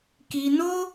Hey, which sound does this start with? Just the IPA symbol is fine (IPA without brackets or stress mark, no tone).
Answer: k